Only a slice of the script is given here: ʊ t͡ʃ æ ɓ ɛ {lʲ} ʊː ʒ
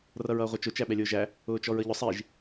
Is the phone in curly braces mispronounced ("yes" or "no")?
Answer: no